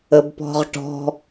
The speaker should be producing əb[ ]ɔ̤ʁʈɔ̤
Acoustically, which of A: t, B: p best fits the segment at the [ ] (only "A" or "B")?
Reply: B